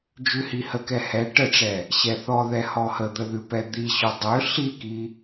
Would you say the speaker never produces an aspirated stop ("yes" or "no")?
yes